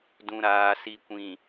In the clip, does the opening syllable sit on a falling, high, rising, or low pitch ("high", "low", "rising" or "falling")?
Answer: low